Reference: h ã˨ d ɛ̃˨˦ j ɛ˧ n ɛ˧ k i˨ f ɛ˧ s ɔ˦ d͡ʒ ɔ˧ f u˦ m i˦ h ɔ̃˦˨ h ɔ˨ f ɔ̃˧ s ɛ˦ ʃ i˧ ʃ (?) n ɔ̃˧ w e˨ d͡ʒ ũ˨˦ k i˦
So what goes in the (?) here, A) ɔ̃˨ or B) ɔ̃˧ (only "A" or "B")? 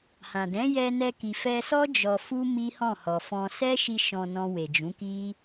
B